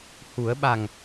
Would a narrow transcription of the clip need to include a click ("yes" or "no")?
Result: no